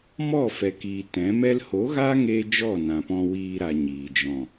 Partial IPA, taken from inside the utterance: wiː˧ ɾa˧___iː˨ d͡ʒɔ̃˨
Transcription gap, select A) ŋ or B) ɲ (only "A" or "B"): B